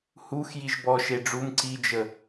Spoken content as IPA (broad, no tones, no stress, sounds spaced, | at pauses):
h u x j i ʒ b ɔ ʃ e ɖ͡ʐ u m ǀ i d͡ʒ ə